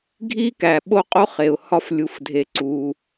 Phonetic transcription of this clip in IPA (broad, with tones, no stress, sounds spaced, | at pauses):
ɡʱ i˥ k æ˩ ɓ o˥ qʼ o˥ χ e˩ ʊ̯ h ɒ˦ f lʲ u˨ f dʱ e˨ ǀ u˩